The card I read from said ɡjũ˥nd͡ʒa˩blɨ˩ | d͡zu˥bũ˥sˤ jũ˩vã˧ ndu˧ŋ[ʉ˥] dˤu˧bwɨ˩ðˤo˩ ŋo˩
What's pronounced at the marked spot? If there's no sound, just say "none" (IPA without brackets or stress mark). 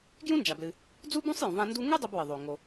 ʉ˥